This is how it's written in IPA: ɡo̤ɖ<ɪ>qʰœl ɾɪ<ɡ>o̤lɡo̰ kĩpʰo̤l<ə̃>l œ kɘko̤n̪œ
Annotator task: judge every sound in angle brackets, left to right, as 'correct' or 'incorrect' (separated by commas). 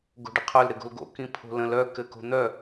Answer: correct, correct, correct